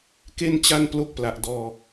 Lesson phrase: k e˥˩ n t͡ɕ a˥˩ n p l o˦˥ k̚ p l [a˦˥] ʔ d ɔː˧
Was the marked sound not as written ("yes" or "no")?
yes